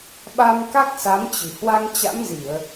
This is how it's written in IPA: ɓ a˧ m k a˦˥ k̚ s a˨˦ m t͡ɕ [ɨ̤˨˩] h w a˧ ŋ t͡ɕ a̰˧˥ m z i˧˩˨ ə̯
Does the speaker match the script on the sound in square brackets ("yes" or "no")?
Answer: yes